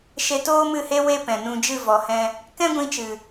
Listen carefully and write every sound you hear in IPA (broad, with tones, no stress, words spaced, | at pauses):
ʃe˧toː˦mɨ˦˨he˦ we˦pɛ̃˨nũ˧ d͡ʒɨ˦˨vɔ˨hɛ̃˧ | kɛ̃˦ɡʷĩ˧t͡ʃɨ˨